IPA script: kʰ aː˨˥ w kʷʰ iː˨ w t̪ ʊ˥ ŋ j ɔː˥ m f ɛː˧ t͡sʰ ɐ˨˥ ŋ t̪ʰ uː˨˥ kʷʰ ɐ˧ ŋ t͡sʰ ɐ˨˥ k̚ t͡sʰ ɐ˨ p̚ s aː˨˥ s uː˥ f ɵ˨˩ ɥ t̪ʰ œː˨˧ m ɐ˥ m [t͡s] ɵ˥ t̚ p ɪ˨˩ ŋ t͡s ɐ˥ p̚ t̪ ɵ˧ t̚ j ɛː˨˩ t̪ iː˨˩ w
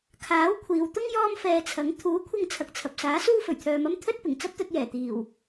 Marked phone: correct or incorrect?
incorrect: t̪ʰ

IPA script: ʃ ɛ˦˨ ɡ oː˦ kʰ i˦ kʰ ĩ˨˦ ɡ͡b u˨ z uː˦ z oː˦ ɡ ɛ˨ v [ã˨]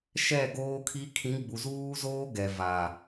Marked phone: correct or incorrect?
incorrect: a˨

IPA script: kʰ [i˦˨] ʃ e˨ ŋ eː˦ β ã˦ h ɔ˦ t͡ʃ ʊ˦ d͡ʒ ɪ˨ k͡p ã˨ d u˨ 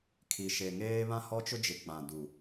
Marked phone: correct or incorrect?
incorrect: i˨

